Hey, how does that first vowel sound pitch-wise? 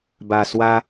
low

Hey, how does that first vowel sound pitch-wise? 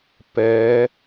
rising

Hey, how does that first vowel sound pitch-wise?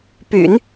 low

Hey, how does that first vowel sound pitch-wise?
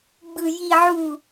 low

